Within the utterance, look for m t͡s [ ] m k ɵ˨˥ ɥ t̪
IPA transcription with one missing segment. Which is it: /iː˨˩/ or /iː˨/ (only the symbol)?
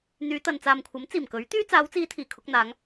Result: iː˨˩